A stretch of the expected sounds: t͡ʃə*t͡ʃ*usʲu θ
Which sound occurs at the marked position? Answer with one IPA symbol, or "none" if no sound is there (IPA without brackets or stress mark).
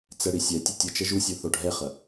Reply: ʒ